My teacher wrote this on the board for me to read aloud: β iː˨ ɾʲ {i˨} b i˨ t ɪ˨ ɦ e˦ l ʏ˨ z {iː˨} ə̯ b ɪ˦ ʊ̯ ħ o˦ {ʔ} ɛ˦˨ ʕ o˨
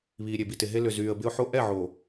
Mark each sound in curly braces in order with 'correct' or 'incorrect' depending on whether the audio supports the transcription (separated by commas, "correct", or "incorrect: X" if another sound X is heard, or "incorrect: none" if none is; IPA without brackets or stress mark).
incorrect: e˨, incorrect: yː˨, correct